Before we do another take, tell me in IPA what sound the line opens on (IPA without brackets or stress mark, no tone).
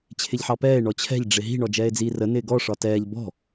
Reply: t͡ɕʰ